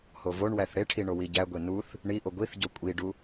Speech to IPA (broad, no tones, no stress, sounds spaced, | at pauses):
h o v o ɳ w æ θ ɽ e ʈʰ i ɳ o w i ɟ æ ɡʷ e n u θ | ɳ i ʔ o ɡʷ i θ ɟ o kʷʼ i ɖ u